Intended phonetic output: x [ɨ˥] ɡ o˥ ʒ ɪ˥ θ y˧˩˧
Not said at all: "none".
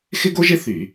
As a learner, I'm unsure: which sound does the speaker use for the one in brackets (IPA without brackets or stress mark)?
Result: ɪ˥